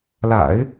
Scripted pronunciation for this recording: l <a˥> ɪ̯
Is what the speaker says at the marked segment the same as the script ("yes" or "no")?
no